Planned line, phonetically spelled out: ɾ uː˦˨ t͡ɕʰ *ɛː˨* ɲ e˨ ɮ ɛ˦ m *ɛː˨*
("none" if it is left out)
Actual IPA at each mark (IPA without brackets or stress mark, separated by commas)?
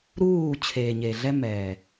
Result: eː˨, ɛː˨